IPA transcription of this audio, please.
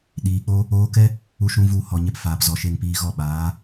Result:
ɗ iː˨ k͡p o˧ | oː˧ k ɛ˦ | u˦ ʃ ũ˦ v u˦˨ h ɔ˨ ɲ ɛ˧ p f aː˨ p z ɔ˨ ʃ e˧ ŋ p iː˧ ɣ ɔ˦˨ ɓ aː˨˦

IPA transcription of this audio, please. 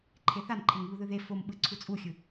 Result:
ǃʰ e θ a n ǃʰ e ŋ β u ð ɯ ð e f o m ɓ ɯ ǀʰ u t͡sʼ u xʲ ɯ

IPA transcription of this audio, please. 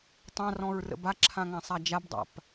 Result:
tˤ ã r ɔ̃ ɹ r ə̰ b a ǁʰ ã ŋ ã sˤ a d͡ʒ a b dˤ a̰ p

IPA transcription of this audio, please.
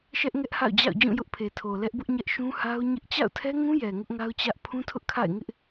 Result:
ʃ ɛ˦ ʔ ŋ ɛ˦ ʔ h a̰˦˨ ʊ̯ d͡ʑ a̰˦˨ ʊ̯ d͡ʑ ũ˦˨ j ʊ˦ ʔ pʰ e˨ tʰ o˨ l ɛ˦ ʔ b ʊ˦ ʔ ɲ ɛ˦ ʔ ʃ ũ˦ h a˦ ʊ̯ ɲ ɪ˦ ʔ t͡ɕ a̰˦˨ ʊ̯ tʰ ɛ˦ ŋ ũ˦ j ɛ˨ ŋ ʊ˦ ʔ ŋ a˦ ʊ̯ t͡ɕ ä˦ ʔ pʰ ũ˦ tʰ ʊ˦ ʔ kʰ a̰˦˨ ɪ̯ ŋ ɪ˦ ʔ

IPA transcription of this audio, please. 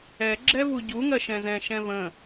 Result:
ɛ ɡ͡ǁ ɛ v u ɟ u ŋ ɜ ʃ ɛ̃ z ɛ̃ ʃ ɛ̃ v ə̃

